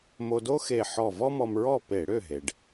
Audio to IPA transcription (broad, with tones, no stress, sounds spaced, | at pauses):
m o˧ d o˥ x e˧˩ ħ ɔ˧˩ v ɔ˥ m ɔ˧ m ɹ ɔ˥˨ p e˧˩˧ ɽ ø˥˨ ɦ e˩ ɖ